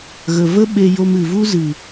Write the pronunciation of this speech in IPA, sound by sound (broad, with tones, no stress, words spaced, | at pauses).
ɣə˨və˦ ɓe˧jo˧m ɨ˨vu˦zɨ˨